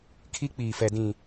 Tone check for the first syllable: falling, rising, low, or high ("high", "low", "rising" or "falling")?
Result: high